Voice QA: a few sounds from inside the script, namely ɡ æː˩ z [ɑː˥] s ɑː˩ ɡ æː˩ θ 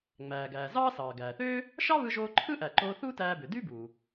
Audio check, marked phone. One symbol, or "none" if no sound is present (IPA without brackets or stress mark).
ɑː˥